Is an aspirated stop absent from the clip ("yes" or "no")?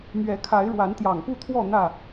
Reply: no